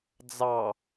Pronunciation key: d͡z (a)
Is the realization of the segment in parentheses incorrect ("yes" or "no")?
yes